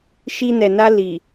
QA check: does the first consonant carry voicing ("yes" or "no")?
no